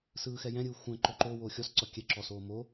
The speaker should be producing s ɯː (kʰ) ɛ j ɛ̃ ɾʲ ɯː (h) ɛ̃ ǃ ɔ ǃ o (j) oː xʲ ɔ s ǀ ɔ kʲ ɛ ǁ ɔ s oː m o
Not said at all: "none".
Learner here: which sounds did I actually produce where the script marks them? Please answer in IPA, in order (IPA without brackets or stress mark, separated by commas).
x, xʷ, w